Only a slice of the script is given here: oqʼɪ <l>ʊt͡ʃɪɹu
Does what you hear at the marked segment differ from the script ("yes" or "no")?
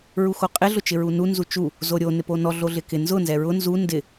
yes